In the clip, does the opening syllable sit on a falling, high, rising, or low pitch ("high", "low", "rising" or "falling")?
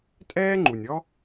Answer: high